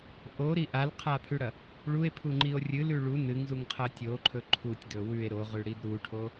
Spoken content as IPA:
ʔ o ɾ i ʔ a l qʰ a pʰ ʉ ɽ ɐ | ɭ u e̯ pʰ u ŋ͡ǃ i o̯ rʲ ɨ l ʉ ɭ u n ɨ ŋ z u ŋ qʰ ɐ tʲ o ǃʰ ɵ ǃʰ u tʲ d ɵ w ʉ e̯ ɾ o ʁ ʉ ɽ i d ɾ u ʈʰ o

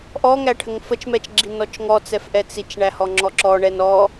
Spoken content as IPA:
ʔ ɔ ŋ æ ʈʰ ə ŋ f ə t͡ʃ m ɛ t͡ʃ ɡ͡ǁ i n ɔ t͡ʃ ŋ ɔ t͡s ɛ f ʔ ɛ t͡s i t͡ʃ ɳ æ h ɔ ŋ͡ǁ ɔ ǁ ɔ ɳ ɛ n ɔ

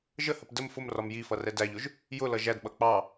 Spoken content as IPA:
ʒ ə h ə p d ə m f ʊ m r ɒ m j i f ʌ r ɛ d æ ʎ ʊ ʒ | j ʊ l ʌ ʒ æ d ɓ ʌ k͡p ɑ

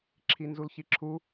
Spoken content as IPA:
ǁʰ i n z u l ç i ǁʰ u

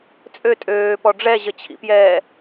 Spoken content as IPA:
t͡sʼ ø tʼ øː p ɔ ɖ͡ʐ ɛ ʑ ə t͡ɕʰ ḭ p j ɛː

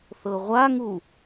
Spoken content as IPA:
θ ɤ ʁʷ a ŋ u

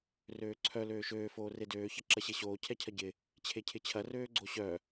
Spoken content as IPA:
r øː ǀʰ œ l øː ʃ øː f oː r e d øː ç ɐ ǁ ɐ ɕ e ɕ oː cʰ ɛ cʰ ɐ ɟ ɪ | t͡ɕʰ e cʰ ɪ t͡ɕʰ ɐ r øː ɡ͡ǀ o ɕ œ

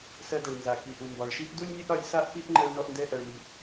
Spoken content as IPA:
s ɜ˧ d ɛ˩ ɭ n z a˩ k i˩ ʔ u˩ m b ɒ˩ ɭ ʃ i˥ ʔ d u˥ lʲ nʲ ɛ˥ ʔ ɾ ɒ˧ lʲ s a˥ ʔ p i˥ ʔ ŋ͡ǃ ɜ˧ ɭ n ɔ˧ ʔ n d ɛ˧ ʔ ɜ˩ ɭ m i˩

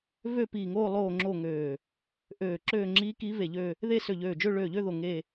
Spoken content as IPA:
v ø˥˧ p iː˧˩ ŋ oː˥˧ lˠ oː˥˧ ŋ͡ǁ o˥˧ ŋ øː˧˩ | ʔ øː˧˩ ǁ øː˥˧ ŋ͡ǁ i˧˥ k i˧˥ v e˧˩ ʎ ø˥˧ | ð e˥˧ s ø˧˩ ʎ øː˧˩ d͡ʒ ø˥˧ ɭ øː˧˩ ʎ ø˥˧ ð o˧˩ ŋ e˥˧

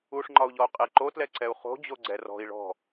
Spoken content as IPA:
u ʂ ŋ͡ǃ ɒ u̯ ʎ ɔ u̯ qʼ e ǃ o t l ɛ ǀ ɛ u̯ χ o̤ d͡ʑ o ɡ͡ǀ ɛ r ɔ̤ i̯ ɭ ɔ̤

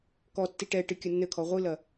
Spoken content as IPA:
k ɔ tː i ʈ ɛ ʈ ɨ kʲ ɐ nː ɘ kʰ ɔ ʁʷ ɨ l ɐ

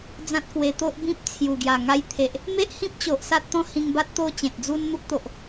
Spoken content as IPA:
d͡z ã˦ t̚ k w e˧ t̪ o˦ ʔ b ĩ˦ p̚ t͡sʰ j u˨˩ ɡ j a˨˩ ŋ a˧ j t̪ʰ e˨ ʔ | m e˦ ʔ h ĩ˦ p̚ t͡ɕ o˨ ʔ s a˦ t̚ t̪ ɔ̃˦ h ĩ˧ ŋ b a˦ t̚ t̪ o˦ t͡ɕ ẽ˨ t̚ d͡z u˦ n n̪ u˦ k̚ t̪ o˨ ʔ

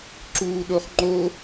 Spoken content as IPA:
ǁ uː ɗ o χ ŋ͡ǃ o

